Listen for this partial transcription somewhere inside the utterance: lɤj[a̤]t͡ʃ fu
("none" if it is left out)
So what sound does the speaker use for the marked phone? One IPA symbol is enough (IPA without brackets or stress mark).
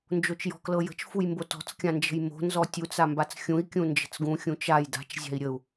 ə̤